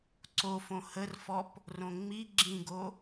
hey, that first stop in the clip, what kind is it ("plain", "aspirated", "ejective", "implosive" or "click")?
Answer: click